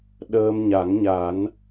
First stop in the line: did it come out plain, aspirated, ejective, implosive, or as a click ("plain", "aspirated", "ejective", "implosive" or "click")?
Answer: implosive